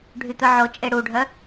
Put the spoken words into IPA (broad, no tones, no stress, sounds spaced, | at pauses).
ɖʱ y t̪ œ ʕ o t͡ʃʼ e ɽ u ɖʱ œ